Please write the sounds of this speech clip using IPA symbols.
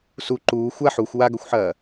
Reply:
s u ǃ uː xʷ a ħ u xʷ w a ɡ ɵ xʷ ħ ɐː

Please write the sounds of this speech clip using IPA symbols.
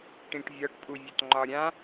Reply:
ʈ ĩ ʈ vʲ ɒ ʈ pʼ u vʲ ɒ t ŋ͡ǃ ɒ ɾʲ ã

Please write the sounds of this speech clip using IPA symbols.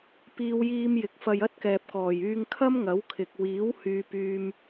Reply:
p iː˧ w j iː˧ m j ɪ˨ k̚ f ɐ˧ j ɐ˥ t̚ k ɛː˨ p̚ k ɔː˨˩ j yː˧ ŋ kʰ ɐ˥ m ŋ ɐ˨˥ w kʰ ɪ˨ k̚ w iː˨˥ w h yː˨ p yː˨ m

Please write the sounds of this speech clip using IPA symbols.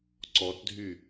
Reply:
ǀ ɔ t dʱ y

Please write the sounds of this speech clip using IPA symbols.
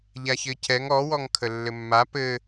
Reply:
ʎ a ç ɘ c ɛ ŋ ɔ w ɔ ŋ kʰ ə lː ɘ mː a p ɘ

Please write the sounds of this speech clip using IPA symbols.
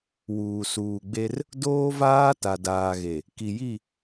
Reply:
w uː˨ s uː˨ ɡ͡b e˦ r | d oː˦ v aː˦ t a˨ d aː˨ ɣ e˨ | k i˨ j i˦˨

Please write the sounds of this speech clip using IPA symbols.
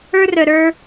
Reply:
ə˞˦ r œ˧ ɾ ə˞˦

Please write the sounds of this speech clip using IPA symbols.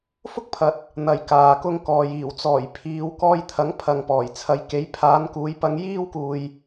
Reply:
f ʊ˥ k̚ pʰ ɐ˨ t̚ | n̪ ɐ˨ j k aː˨ k ʊ˧ ŋ k ɔː˨ j iː˨˩ w t͡s ɔː˨˩ j pʰ iː˨˧ w k ɔː˧ j t̪ʰ ɐ˨˥ ŋ pʰ ɐ˨ ŋ p ɔː˨˩ j t͡sʰ ɐ˨˧ j k e˨˥ j pʰ aː˨˧ n k uː˨˧ j p ɐ˨˧ ŋ j iː˧ w k uː˨ j

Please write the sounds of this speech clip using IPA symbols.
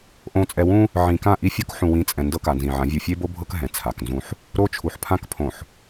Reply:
ʔ õ˨ t͡sʼ ɛ˨ w ũ˦ | ʕ ĩ˨ k ã˦˨ ʔ i˦ fʲ o˦ k ħ ũ˨ w ĩ˨˦ t͡sʼ ɛ̃˨ n d ɤ˦ k a˨ n z ĩ˨ ʕ ã˨˦ vʲ u˨ fʲ e˦ b o˦ bʱ ɤ˦ k ɦ ɛ̃˨ t͡sʰ a˨ k n z ũ˦ ħ | ɾ o˦ t͡ʃʰ u˨ ħ pʰ ã˦ k pʰ õ˨ ħ

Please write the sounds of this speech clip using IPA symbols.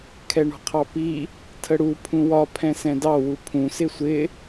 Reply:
kʰ ɛ ɳ ɔ̤ qʰ ɑ p i | tʰ ə ɽ u pʰ ũ w ɒ pʰ ɛ̃ s ɛ̃ d ɑ w u pʰ ũ s ɪ sʷ ɪ

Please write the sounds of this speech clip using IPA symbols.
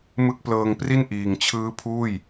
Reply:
m ɯ˦˥ k̚ p l ɤː˧ ŋ p r i˥˩ n ʔ iː˨˩ ŋ t͡ɕʰ ɯː˦˥ pʰ uː˥˩ j

